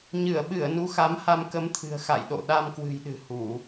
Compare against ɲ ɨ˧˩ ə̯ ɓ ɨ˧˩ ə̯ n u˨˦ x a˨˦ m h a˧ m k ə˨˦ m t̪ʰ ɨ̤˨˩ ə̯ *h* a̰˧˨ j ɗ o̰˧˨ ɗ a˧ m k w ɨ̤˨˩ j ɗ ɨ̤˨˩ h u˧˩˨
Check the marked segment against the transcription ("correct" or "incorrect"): incorrect